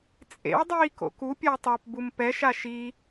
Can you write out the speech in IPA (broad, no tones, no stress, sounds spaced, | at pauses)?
t͡sʼ ḛ w dˤ iː k o̰ k u pʲ ɔ w tˤ a p b u m p ɛ ʃ a ʃ i